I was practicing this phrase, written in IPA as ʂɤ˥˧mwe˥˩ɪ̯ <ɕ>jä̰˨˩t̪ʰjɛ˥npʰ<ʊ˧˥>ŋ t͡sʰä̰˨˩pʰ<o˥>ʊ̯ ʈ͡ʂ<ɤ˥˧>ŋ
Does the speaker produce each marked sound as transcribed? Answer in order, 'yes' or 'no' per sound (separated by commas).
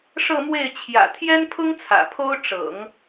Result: no, no, yes, no